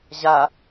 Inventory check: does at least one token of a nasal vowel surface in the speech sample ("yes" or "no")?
no